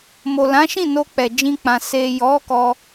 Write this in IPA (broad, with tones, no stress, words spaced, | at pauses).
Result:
mo˨lã˨˦ʃĩ˦˨ no˧k͡pɛ˨ d͡ʒĩ˧k͡pã˨ se˨jɔ˨˦ kɔ˧